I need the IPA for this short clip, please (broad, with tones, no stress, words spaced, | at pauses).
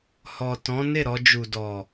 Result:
hɔ˨tɔ̃˨˦ ne˦˨ɾɔ˧d͡ʒu˨ dɔ˨